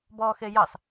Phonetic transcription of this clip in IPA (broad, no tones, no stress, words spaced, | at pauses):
bɔːxejɑs